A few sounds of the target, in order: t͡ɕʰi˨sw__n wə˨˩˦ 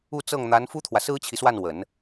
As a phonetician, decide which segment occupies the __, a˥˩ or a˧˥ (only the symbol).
a˥˩